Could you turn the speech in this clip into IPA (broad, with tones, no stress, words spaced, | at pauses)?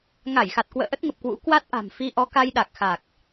ŋa˧˩jxa˨˩t̚kwə̰ː˧˨ ʔə˦˥t̚ŋə˨˩p̚kwṵ˧˥ kwa˦˥t̚ʔa̤˨˩m fi˧ʔɔ˨˦ ka˧jɗa˨˩k̚xa˨˩k̚